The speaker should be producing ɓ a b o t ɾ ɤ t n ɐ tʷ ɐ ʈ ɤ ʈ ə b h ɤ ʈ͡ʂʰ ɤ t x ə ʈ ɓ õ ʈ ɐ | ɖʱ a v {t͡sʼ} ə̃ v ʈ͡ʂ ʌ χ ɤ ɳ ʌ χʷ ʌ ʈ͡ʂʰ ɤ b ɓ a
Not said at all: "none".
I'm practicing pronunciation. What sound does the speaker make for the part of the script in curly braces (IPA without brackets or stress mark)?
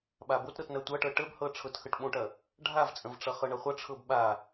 t͡sʼ